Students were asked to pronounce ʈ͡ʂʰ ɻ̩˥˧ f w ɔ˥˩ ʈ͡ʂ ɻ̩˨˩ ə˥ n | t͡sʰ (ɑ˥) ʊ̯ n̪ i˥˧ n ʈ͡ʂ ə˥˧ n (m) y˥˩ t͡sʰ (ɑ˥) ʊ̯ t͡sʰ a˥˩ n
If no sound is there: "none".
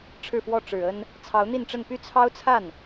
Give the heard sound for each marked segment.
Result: ɑ˧˥, p, ɑ˥

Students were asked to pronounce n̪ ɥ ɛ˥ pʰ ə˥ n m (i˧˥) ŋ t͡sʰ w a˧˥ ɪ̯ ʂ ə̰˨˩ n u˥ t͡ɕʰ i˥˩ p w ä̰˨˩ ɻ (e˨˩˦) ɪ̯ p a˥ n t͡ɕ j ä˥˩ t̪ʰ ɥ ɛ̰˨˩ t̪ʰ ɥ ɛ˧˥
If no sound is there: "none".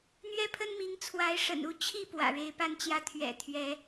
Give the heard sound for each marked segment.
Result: i˧˥, e˧˥

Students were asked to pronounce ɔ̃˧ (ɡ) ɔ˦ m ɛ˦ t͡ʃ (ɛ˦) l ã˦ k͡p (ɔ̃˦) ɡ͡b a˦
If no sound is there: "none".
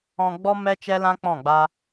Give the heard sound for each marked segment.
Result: ɡ͡b, ɛ˦, ɔ̃˦˨

